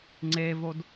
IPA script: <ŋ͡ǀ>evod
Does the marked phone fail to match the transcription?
no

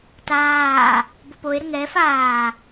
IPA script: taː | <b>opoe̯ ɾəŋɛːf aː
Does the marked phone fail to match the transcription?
no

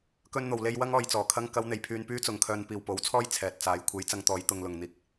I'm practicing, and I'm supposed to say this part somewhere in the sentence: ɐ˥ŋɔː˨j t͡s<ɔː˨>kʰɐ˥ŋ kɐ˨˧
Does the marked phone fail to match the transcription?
yes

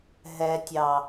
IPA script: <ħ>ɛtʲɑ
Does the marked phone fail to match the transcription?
yes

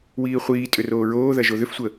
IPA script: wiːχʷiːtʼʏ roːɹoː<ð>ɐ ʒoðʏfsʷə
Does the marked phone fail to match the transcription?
no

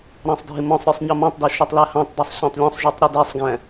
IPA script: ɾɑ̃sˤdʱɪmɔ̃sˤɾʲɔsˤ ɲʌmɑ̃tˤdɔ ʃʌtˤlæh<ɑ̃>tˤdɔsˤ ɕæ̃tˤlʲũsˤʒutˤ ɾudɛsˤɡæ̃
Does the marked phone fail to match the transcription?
no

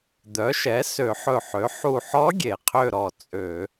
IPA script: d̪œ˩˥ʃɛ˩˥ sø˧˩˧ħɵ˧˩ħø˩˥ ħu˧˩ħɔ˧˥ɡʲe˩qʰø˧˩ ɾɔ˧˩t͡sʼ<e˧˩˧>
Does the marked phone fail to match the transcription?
yes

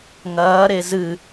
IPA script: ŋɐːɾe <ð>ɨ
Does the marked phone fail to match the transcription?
yes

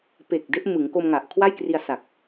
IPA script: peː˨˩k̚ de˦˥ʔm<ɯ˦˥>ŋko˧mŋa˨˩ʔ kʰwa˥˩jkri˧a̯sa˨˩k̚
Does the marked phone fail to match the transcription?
yes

